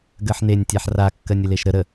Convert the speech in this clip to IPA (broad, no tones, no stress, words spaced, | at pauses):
ɡɜħnenʲ tʲaħra kːɜnʲəleʃɾə ɾə